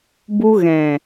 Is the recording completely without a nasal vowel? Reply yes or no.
no